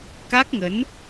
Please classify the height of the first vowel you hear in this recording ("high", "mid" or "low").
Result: low